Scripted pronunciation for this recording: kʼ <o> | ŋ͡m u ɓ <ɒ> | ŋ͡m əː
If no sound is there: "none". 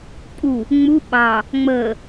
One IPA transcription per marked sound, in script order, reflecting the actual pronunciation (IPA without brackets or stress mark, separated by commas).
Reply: u, ɑ